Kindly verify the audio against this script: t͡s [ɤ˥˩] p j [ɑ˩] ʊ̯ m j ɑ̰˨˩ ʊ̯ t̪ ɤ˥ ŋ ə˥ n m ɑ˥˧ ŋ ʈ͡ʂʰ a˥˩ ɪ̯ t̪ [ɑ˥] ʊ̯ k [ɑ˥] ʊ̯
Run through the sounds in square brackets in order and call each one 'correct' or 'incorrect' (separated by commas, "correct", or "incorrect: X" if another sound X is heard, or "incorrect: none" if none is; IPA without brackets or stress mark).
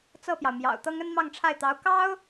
correct, correct, incorrect: ɑ˧˥, correct